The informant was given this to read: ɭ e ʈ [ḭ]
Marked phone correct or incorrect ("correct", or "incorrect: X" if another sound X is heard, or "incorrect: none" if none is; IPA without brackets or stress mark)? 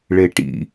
correct